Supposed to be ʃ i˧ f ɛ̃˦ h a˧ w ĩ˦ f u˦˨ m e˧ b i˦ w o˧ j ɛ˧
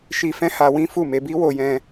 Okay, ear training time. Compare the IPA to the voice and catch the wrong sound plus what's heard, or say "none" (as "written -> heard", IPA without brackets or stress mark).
ɛ˧ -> ɛ̃˧